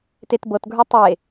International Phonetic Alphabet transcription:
t e t b ɤ t ɡʱ ə˞ tˤ e

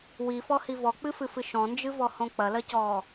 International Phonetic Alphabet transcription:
w i f ɔ h i v ɔ k͡p ɨ f ɨ f ɨ ʃ ɔ̃ n d͡ʒ ɨ v ɔ h õ k͡p ɐ l ɐ c ɔː

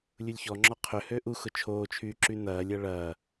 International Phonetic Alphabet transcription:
lʲ u lʲ ç ɔ ŋ͡ǁ ɔ qʰ ʏ h ø ʔ u x ʊ t͡ʃʰ oː t͡ʃʰ yː ǁ y n ɐː lʲ ɐ ɭ ɐː

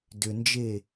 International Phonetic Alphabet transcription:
d ʏ n d͡ʒ e

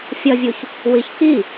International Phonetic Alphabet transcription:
fʲ ʌ vʲ u ç | w i ç k i

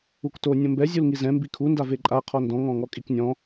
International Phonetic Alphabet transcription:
u k t o nʲ õ m b ɛ zʲ u l ŋ i z ɛ̃ m b i kʰ u n d a v e ǃʼ a qʰ ɔ n d ɔ̃ ŋ ɔ̃ ŋ ɔ kʼ i k nʲ ɔ̃

